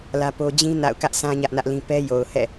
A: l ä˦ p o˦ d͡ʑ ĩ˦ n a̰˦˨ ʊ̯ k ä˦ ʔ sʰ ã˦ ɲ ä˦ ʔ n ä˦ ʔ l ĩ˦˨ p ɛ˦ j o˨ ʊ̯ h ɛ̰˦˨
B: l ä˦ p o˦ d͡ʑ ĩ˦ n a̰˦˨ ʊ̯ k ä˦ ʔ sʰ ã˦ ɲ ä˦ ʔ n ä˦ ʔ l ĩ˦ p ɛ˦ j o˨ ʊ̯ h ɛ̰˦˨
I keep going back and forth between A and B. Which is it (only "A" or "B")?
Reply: B